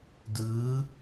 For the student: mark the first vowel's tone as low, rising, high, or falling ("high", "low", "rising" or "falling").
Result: rising